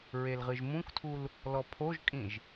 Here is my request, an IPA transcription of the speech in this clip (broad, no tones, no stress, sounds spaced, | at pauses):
ɹ e l ʁ ɨ ʒ m ũ k tʰ u l | l ɔ pʰ o ʒ kʼ ĩ ʒ